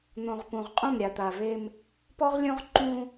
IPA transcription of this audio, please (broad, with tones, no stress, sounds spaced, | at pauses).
n̪ õ˨ ʁ p ũ˨ ʁ qʼ ũ˦˨ m ɾʲ a˨ t̪ a˨ v e˦ m | p ɔ˦ ʁ lʲ õ˦ ʁ ǃ ũ˦